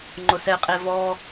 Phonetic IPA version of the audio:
ŋ͡ǃ ʊ s ɛ qʼ e v ɔ

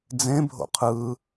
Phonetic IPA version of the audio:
d͡z ẽ bʱ o̰ qʰ ɯ

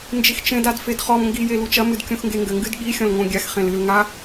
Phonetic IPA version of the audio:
n d͡ʒ i x t͡ʃ ẽ d a d f e d χ ɔ m ŋ ɡ i j e l u t͡ʃ ɐ m ɨ d kʲ ũ x ŋ ɡ e ŋ ɡ ɘ ŋ ɡ ɨ d ɠ i xʲ ɔ̃ l ŋ õ ɡʲ a x χ ẽ l ɨ l ŋ a

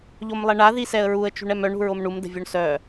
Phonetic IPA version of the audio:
ʎ o m lˠ ɛ ɳ a ð i s ɛ ə̯ ɹ u ə̯ t͡ʃ ṳ ɳ ɛ m œ ɳ ṳ ɹ o m ɳ u m d ə̤ vʲ o ɳ s œ

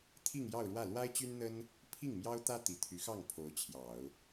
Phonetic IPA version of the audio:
t̪ʰ i˥˧ ŋ j ɑ˥˧ ʊ̯ ɻ w ä˥˩ l w a˥ ɪ̯ t͡ɕ y˥ n n̪ ə˥ n | pʰ i˥˩ ŋ m j ɑ˥ ʊ̯ t̪ ä˥ t̪ i˨˩ t̪ʰ y˧˥ x ɑ˥˩ ŋ pʰ o˧˥ ʊ̯ t͡ɕʰ j ɑ˨˩˦ ʊ̯

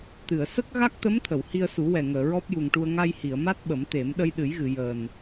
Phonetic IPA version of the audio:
t̪ ɨ˨˩˨ ə̯ s ə˦˥ k̚ ɣ a˦˥ k̚ t̪ ə˧˥ m t̪ʰ ə˨˩˨ w h i˧ ə̯ s u˨˩˦ w ɛ˨˩ ŋ əː˨˩˨ ɹ ɔ˦˥ p̚ j u˨˩ ŋ ʈ u˧ ə̯ ŋ a˧ j h i˨˩˨ ə̯ m a˦˥ t̚ ɓ ə˨˩˦ m t̪ e˨˩˦ m ɗ ə˧ j ɗ ɨ˨˩˦ j ɣ ɨ˨˩˨ j əː˨˩ n

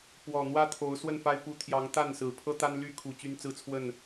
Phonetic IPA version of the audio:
p w ɔ˨˩ n̪ w ä˦ t̪ʰ o˨˦ ʊ̯ s w ə˥˨ n f a˦ ɪ̯ p u˨˦ t̪ʰ j ɑ˨˦ ŋ t̪ a˥˨ n s ɹ̩˨˩ pʰ ɤ˦ t̪ a˦ n l y˦ kʰ u˨˩ t͡ɕ y˦ n t͡s ɹ̩˦ t͡sʰ w ə˥˨ n

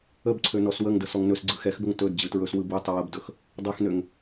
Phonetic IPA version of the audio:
ə b ǀʰ ø n ɔ s w ə ŋ d ə s ɔ ŋ n ɵ s ɡ͡ǀ ɯ x ɛ x b ə ŋ t ɵ d d͡ʑ ɯ t ɹ ɵ s w ɯ b ɯ tˤ ə w ə b d ɵ x | dˤ ɛ x n ø ŋ

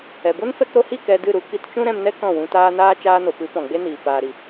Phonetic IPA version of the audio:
ɛ˨ b o˦ n f ɛ˦ k ɾ o˧ h i˦˨ k ɛ˧ d ɨ˦˨ ɾ u˧ k i˧ t t͡ʃ ũ˦ ɾ ɛ̃˧ m n ɛ˦ k ɔ̃˦˨ w ũ˧ t aː˦ n aː˦ t͡ʃ aː˧ n o˨ p ɨ˨˦ p ɔ̃˨ ɡ͡b e˦ n iː˨ p aː˨ ɾ i˨

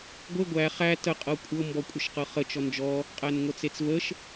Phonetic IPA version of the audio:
ɡʷ e ɡʷ æ χ æ t ə qʼ ɤ kʷʼ ɤ m b ɔ kʷʼ ə ʃ q ɤ χ ə t͡ʃ ɔ n d͡ʒ ɔ | qʼ æ n ŋʷ ə t͡s e t͡s v ə ʃ

